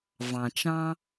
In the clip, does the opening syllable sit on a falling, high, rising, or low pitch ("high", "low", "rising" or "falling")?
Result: low